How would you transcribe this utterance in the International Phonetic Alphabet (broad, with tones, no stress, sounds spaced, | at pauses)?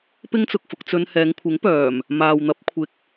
p ɪ˥ ŋ t͡s ʊ˨ k̚ f ʊ˨ k̚ t͡s ɵ˧ n h ɛː˨˧ ŋ kʷʰ ɪ˨˥ ŋ p œː˨˩ m | m aː˨ w n̪ ɐ˨˥ p̚ kʷʰ ɪ˨ k̚